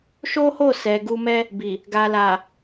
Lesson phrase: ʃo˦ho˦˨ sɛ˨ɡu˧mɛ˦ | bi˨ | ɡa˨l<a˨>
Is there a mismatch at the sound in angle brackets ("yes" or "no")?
no